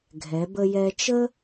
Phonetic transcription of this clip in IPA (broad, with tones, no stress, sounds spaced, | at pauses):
ɡʱ ɛ˩˧ b ə˧ j ɛ˧ t͡ʃ ə˥